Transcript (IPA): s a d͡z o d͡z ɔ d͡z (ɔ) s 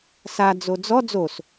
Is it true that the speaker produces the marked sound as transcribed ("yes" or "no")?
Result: no